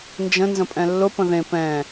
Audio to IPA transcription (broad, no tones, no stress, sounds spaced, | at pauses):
n d͡ʒ ə̃ n z ə̃ pʼ ɛ̃ lː ʊ p ə̃ ð ẽ p ɛ̃